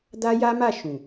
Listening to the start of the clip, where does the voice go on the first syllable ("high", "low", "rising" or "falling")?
high